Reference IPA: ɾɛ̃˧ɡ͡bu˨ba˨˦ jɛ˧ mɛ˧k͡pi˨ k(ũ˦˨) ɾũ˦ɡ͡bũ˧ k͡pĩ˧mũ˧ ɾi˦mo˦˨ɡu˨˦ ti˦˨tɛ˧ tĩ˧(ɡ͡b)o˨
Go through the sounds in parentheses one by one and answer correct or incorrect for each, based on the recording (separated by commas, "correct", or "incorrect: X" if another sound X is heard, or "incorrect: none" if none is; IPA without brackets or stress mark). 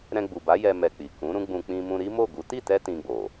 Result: incorrect: ũ˨˦, correct